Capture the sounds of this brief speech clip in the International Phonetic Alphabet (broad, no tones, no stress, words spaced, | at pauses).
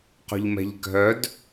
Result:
qo̤ʎmɛ̤ʎɡʱœd